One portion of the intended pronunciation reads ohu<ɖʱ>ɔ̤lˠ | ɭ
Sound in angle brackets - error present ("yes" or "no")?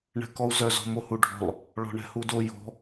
no